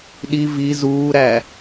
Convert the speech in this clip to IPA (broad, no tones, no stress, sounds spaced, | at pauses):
ɗ i v i z uː ɾ æ